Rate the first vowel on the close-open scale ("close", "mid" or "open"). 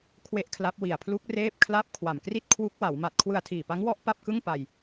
mid